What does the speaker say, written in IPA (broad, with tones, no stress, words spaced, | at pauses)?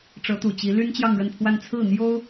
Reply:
ʈ͡ʂɤ˧˥t̪u˨˩t͡ɕi˧˥ ly˥nt͡ɕjɑ˥˧ŋɻə˥˧npʰwa˥˧n t͡sʰɹ̩˥˩n̪jo˥ʊ̯